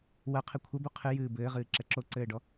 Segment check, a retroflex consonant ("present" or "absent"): present